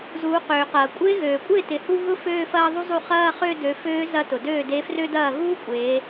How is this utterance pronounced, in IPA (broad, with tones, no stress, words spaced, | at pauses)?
zuː˩˧qøː˩qɐː˩ kʷʼɪː˧˥ɣøː˩kʷʼɪː˥˩ tɪ˩˧hu˥˧ ɣʊ˥ føː˥˧fɐː˥˧ðˤu˥zˤu˥˩ χɐː˥˧χø˥˧ dø˩˧føː˧˥ zɐ˧˥tʊ˩døː˥˩ de˧˥frø˥dɐː˥˩ ɣuː˥kʷʼeː˩˧